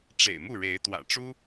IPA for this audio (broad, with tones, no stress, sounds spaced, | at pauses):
ʈ͡ʂ ḛ˨˩ ɪ̯ m u˥˨ ɻ e˨˦ ɪ̯ t̪ w ä̰˨˩ ʈ͡ʂ u˦